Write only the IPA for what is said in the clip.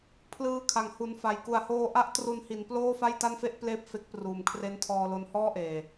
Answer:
pʰlɯː˧kʰa˩˦ŋ hu˨˩nfa˨˩j ku˨˩a̯hoː˧ʔa˦˥ʔ tru˧nhi˩˦n ploː˥˩fa˥˩jta˥˩nfe˥˩ʔ pleː˥˩p̚fe˦˥k̚pruː˨˩mkʰre˦˥n tʰɔː˧lo˧nhɔː˥˩ʔeː˨˩

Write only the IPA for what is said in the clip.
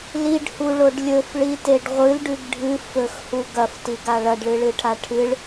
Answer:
liɖhuɭoɖ lʲɵfɭiteɖ ʁʷɨlɖʉɡ ɖʱɨ fɵxhu ɡɐftiɡa ɭɐɖɭɨɭɨʈʰa ʈʰɨɭ

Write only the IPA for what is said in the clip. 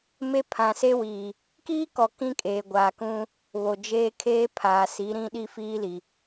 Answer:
me˦pʰã˨se˦ wiː˨ | kiː˦kɔ˨ kĩ˦kʼeː˨ɡʷaː˨ kũ˦ | βo˨d͡ʒeː˦ kʰeː˦pʰaː˨si˨˦ɾĩ˦ ɗi˦fiː˦ li˨

